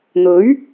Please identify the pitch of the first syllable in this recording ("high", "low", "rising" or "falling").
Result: rising